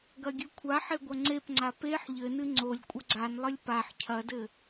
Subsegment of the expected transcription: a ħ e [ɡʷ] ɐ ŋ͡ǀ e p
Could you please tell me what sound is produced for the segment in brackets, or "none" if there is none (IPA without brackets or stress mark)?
ɡʷ